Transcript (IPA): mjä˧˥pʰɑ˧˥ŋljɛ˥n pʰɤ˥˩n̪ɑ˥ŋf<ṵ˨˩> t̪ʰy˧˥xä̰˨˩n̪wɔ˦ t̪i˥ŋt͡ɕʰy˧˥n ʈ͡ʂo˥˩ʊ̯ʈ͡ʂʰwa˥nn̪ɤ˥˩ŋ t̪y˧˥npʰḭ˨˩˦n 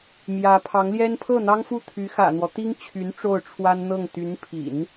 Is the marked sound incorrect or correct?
incorrect